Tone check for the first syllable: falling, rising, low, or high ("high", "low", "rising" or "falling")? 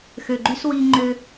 low